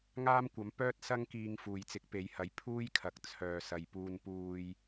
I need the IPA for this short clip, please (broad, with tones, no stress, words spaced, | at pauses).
ŋaː˥mkʷɐ˨˥mpœː˥t̚ sɐ˥ŋkiː˧ŋ fuː˨jt͡sɪ˨˥k̚pe˨˧jhɐ˨˥j pʰuː˥jkʰɐ˨k̚ t͡sʰœː˨sɐ˨jpuː˧npuː˧j